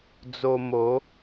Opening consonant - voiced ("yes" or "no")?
yes